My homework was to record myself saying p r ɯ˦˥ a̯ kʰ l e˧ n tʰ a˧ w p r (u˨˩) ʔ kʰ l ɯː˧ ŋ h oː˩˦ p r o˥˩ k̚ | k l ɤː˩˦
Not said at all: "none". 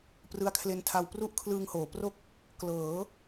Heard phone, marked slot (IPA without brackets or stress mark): u˥˩